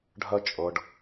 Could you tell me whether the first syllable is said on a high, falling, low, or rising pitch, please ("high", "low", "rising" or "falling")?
high